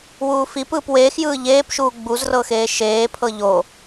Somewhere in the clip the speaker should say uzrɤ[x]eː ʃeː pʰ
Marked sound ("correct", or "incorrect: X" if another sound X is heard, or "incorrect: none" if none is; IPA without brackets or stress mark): correct